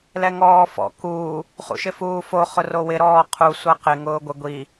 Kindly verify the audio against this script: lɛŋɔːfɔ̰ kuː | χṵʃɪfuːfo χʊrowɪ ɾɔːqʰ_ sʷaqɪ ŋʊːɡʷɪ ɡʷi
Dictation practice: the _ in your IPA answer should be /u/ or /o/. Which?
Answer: u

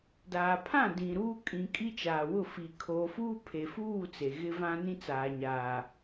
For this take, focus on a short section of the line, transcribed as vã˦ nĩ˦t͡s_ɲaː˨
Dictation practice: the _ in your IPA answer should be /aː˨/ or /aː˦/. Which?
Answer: aː˨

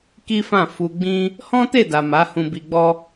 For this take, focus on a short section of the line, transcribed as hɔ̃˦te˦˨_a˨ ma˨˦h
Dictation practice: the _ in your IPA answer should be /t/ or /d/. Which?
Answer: d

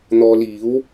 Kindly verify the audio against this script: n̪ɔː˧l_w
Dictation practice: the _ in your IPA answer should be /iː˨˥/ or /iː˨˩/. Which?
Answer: iː˨˥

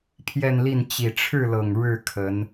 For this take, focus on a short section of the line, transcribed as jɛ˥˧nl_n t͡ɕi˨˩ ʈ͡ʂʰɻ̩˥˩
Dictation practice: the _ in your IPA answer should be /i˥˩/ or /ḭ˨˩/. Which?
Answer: i˥˩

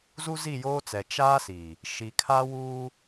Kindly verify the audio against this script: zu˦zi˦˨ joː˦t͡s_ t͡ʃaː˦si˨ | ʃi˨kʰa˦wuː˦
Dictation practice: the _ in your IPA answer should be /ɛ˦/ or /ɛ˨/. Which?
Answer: ɛ˨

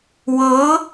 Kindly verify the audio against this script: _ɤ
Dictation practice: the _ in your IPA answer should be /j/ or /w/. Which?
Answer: w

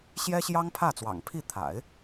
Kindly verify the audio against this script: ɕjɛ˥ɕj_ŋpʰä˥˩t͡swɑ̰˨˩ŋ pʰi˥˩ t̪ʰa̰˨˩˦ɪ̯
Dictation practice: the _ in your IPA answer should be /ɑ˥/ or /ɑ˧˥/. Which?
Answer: ɑ˥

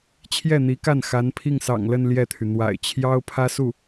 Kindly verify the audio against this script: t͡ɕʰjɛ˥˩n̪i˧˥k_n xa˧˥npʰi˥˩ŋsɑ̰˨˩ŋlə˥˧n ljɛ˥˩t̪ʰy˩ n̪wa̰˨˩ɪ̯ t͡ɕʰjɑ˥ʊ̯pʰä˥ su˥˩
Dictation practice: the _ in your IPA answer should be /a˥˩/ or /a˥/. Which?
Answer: a˥˩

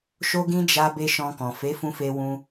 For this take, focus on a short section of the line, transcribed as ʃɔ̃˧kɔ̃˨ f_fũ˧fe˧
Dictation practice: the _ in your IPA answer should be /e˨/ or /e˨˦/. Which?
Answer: e˨˦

